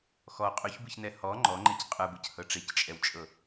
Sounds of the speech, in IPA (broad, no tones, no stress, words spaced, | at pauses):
xɔ qʼʉçbɯçnɛ hɔ ŋ͡ǃɔŋ͡ǃec qʼɯbɯchɤ ʈ͡ʂect͡ʃʼɛwt͡ʃʼɤ